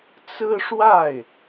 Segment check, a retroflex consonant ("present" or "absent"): present